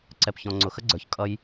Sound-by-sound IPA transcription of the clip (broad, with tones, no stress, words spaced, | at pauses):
ǀɛ˨pçɔ̃˨ŋ͡ǀʊ˨ xə˦ɡ͡ǀə˞˨ç kʼʌ˧j